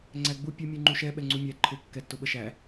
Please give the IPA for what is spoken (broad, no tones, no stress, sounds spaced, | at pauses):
ŋ͡ǀ æ ɡ͡b u pʲ ʊ mʲ u ŋ͡ǃ u ʃ ɛ ɓ ɛ ŋ͡ǀ u mʲ æ ǃʰ ʊ kː ɛ tː ʊ ɓ ə ʃ æ